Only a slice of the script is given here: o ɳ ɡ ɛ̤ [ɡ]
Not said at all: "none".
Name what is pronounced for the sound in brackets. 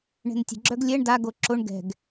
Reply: ɡ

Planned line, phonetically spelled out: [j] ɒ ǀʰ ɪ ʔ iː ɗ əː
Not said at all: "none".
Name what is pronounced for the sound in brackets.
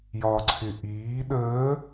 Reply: j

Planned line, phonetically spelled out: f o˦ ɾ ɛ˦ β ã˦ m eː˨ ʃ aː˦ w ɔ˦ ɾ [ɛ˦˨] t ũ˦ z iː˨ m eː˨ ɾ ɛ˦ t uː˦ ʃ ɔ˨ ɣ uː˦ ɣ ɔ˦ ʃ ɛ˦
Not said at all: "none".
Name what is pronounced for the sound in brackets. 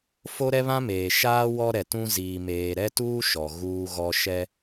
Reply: ɛ˨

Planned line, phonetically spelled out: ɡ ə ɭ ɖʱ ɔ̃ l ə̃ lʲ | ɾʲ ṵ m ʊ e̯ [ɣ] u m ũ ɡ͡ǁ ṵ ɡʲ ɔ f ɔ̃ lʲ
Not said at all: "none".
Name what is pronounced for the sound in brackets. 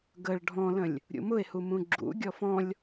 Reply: h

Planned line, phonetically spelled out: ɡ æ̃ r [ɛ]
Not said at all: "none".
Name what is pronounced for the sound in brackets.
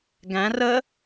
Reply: ə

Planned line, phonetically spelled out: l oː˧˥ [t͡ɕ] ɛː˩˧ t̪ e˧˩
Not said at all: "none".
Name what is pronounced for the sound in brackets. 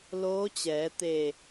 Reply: t͡ɕ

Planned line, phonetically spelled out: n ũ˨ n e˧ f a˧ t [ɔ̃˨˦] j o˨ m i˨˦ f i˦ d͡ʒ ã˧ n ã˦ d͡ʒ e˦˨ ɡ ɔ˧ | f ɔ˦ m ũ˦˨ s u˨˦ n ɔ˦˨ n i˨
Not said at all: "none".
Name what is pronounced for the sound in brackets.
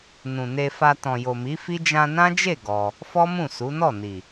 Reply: ɔ̃˨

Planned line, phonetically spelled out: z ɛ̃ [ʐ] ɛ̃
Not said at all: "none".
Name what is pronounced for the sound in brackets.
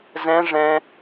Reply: ʐ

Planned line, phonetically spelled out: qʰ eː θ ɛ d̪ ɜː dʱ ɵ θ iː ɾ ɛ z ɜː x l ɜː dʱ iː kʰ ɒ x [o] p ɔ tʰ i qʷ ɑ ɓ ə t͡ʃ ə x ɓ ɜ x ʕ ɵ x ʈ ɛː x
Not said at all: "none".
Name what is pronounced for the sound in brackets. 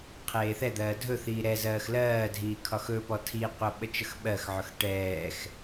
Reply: ɵ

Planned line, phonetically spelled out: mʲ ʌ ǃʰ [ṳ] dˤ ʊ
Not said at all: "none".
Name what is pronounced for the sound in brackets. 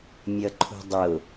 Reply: ṳ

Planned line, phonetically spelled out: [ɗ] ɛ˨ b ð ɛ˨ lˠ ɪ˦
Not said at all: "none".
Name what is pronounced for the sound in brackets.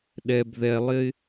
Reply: ɗ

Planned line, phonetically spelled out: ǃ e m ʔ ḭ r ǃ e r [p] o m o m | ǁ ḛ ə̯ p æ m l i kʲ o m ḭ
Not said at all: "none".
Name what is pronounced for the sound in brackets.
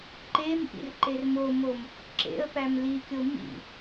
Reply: m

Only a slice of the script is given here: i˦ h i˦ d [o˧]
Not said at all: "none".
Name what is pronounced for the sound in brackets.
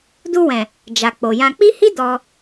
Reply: ɔ˧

